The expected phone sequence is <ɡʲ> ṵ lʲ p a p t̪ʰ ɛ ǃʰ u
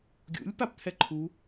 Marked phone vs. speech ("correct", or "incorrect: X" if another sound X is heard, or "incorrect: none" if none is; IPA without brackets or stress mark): correct